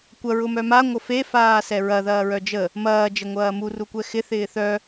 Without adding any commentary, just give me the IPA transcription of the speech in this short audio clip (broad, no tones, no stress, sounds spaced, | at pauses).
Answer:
kʷ ɐ ɹ ʊ m œ m a ŋʷ ə f e f aː s ɛ ɹ ɐ ð ɐː ɹ œ d͡ʒ ə | m ɐː d͡ʒ ə ŋʷ ɐː m u r u kʷ ɛ x ɪ θ ɪː θ œ